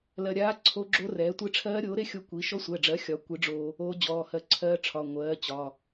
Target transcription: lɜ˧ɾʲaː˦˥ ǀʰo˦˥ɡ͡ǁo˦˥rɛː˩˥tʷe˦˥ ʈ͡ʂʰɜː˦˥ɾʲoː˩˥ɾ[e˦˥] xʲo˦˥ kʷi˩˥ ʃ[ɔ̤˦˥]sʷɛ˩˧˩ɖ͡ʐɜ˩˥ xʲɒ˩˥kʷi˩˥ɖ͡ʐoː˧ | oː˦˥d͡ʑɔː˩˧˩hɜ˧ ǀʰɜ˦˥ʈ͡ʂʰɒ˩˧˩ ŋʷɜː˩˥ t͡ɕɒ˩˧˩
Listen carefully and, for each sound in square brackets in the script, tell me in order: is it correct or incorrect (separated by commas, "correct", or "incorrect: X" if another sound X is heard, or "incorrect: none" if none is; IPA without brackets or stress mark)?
correct, incorrect: ɔ˦˥